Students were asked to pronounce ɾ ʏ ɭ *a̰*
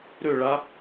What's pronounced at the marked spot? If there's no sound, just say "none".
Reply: a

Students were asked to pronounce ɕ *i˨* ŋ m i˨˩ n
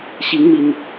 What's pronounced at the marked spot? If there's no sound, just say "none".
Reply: i˨˦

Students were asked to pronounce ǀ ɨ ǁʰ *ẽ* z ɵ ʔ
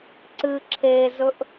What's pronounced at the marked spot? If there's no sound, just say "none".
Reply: e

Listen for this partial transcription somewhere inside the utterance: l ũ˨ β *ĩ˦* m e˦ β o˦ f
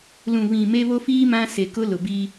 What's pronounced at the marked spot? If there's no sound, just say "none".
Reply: ĩ˨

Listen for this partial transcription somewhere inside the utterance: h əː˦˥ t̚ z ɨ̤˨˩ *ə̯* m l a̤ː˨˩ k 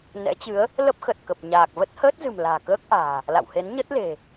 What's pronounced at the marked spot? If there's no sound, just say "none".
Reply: none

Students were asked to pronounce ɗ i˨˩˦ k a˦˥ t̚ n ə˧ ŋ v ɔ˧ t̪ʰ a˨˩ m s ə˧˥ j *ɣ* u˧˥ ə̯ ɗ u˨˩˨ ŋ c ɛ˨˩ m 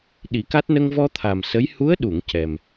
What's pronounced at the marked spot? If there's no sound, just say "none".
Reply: h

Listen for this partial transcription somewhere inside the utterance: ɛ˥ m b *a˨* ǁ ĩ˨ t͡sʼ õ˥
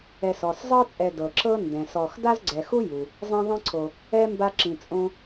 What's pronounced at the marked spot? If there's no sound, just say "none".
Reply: a˦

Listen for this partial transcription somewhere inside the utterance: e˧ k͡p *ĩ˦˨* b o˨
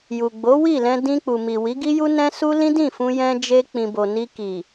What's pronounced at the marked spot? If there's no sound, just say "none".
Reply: ĩ˨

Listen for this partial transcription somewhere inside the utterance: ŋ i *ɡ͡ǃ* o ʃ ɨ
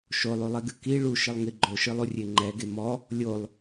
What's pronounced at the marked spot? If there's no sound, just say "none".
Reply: ɡ͡ǃ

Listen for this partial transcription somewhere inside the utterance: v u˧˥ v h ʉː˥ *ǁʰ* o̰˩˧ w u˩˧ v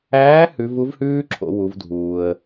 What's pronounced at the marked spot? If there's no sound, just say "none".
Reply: ǁʰ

